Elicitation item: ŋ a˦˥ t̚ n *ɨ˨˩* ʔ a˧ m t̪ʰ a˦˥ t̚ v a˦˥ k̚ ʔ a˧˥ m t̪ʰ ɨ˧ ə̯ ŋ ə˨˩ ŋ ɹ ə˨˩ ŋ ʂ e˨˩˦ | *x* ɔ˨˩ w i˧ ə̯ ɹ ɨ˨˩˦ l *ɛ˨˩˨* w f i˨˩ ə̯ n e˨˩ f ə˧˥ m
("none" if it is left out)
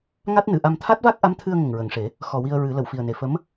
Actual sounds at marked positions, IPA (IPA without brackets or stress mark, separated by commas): ɨ˨˩˨, x, ə˨˩˨